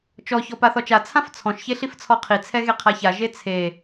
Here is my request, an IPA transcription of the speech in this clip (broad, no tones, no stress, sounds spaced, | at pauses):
t͡ʃ ɔ ç ɔ p a θ ɔ t͡ʃ a t͡sʰ ã f t͡sʰ ɔ̃ ʃ ç e ɬ i f t͡sʰ ɔ qʰ i t͡sʰ ɛ ɣ e qʰ a ç a ʒ e t͡sʰ e